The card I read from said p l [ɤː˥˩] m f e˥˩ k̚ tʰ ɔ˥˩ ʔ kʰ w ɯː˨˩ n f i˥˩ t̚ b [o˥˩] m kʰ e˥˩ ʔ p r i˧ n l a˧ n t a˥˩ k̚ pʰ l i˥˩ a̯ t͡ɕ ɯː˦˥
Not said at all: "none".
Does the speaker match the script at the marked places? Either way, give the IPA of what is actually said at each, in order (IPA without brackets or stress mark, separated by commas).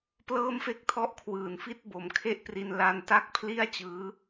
ɤː˥˩, o˩˦